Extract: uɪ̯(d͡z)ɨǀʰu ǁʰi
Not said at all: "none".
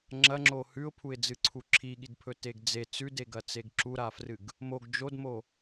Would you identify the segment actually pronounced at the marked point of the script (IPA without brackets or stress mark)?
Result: d͡z